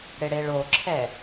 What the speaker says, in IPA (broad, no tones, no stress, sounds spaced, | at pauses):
ɽ ɪ ɽ e ɭ o ǁʰ ɛ